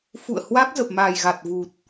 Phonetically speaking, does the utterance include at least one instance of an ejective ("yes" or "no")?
no